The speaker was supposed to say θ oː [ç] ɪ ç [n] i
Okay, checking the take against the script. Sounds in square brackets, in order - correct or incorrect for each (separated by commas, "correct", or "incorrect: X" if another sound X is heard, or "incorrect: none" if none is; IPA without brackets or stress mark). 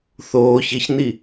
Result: correct, correct